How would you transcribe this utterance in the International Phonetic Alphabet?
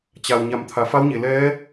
t͡ɕa˩w ɲa˩˧mt̪ʰa˩fa˧˥wɲe˩ lɛː˧˥

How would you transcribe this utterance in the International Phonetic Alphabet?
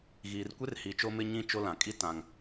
ɣiː˨rkʷe˦rhi˨ t͡ʃo˦ mɪ˦ ɲĩ˦ t͡ʃo˦lã˨ kʼi˦ tã˨ŋ

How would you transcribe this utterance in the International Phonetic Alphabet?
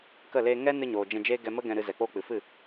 kə˦˨leː˧ ŋɛ˦nɨ˧ɲoː˨ d͡ʒɛ̃˧d͡ʒeː˦ ɡɛ˧mə˦ ɡɛ̃˧ɾɨ˧ zɛ˨k͡poː˧k͡pɨ˨fɨ˦˨

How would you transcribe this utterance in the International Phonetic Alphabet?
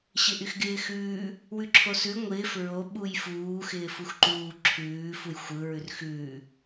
ɕɪʔyxɡɪːxʉː | wʉǁʰosʉ ŋʷɪːf ɹo ɓujfuː xɪːfuxǃuː ǁʰʉː fujxʷɯ ɹʉrxʉː

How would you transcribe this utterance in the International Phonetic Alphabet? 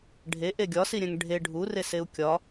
ɖʱe ʔeɡʲɒsiɾʲɛ̃ŋ ɖʱe ɖʱureseu̯ kʲɒ

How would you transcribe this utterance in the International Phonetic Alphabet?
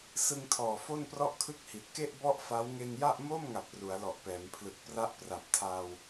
sɯ˧ŋtʰɔː˨˩ fo˥˩nprɔ˥˩ʔkʰɯ˥˩k̚hi˨˩t̚ ke˥˩ʔ bɔ˥˩ʔfa˦˥w ŋe˧nja˥˩ʔ moː˥˩mŋa˨˩p̚ ru˩˦a̯lɔ˨˩ʔpɛː˩˦mpʰlɯ˨˩k̚ pra˥˩ʔpra˨˩p̚tʰaː˧w

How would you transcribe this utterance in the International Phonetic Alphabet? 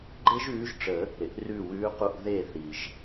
ɡ͡ǃe˥ʒʉː˨˥ʒʈ͡ʂə˨˩˦ | ɾɪ˩ʔrʉː˧˩ wʉː˨˥qu˧˩ʔ ðe˧˩θi˩ʒ

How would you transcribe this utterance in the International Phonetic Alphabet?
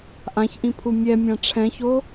ʔãçʔĩpʰu mʲɛmʲã ʈ͡ʂʰɛ̃ço

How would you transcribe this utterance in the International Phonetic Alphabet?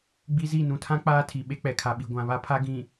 ɡ͡bi˦zi˦˨ nũ˨tʰã˦ k͡paː˦tʰi˨ ɓe˦k͡pɛ˨kʰa˨ɓi˨ ɡʷã˨βa˦pʰa˦ ɡĩ˨

